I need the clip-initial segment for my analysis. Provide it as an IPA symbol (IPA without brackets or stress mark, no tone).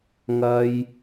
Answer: ŋ